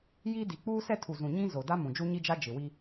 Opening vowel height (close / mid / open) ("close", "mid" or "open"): close